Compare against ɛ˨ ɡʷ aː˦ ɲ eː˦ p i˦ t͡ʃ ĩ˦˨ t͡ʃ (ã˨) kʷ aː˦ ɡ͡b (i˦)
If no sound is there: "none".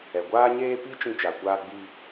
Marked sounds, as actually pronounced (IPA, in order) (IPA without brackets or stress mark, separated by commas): a˨, i˦